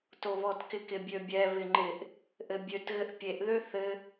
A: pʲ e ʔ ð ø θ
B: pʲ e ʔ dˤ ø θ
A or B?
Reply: A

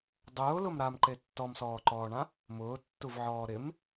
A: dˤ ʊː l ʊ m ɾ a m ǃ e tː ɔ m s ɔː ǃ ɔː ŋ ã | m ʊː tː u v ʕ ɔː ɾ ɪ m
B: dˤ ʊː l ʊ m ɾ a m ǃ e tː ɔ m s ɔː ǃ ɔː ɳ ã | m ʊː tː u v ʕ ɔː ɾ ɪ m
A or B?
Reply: B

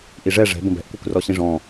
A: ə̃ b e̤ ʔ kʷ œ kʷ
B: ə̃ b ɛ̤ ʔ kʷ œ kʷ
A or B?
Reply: B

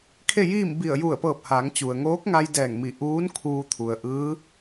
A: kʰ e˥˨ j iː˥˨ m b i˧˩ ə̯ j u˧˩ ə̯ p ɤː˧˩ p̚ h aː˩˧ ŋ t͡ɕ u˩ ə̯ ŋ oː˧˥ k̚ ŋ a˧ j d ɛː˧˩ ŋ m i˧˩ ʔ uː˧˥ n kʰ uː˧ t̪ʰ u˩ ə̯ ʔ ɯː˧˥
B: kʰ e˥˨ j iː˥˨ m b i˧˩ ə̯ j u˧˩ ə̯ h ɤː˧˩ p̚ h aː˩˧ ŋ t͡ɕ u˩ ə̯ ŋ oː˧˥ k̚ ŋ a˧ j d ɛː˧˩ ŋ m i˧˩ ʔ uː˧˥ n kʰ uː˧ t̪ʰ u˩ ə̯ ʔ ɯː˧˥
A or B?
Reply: A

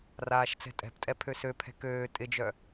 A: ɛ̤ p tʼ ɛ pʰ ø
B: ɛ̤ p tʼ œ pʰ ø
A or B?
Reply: A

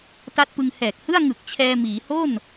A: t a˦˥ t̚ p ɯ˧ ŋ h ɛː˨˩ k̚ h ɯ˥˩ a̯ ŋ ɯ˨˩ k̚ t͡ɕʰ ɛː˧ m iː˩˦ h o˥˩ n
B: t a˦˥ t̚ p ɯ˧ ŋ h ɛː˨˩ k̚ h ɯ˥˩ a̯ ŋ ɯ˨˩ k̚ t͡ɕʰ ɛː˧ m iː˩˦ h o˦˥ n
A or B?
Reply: A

